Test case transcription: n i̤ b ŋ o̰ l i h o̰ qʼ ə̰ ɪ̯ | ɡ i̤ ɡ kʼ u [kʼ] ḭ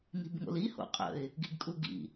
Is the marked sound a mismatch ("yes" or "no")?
yes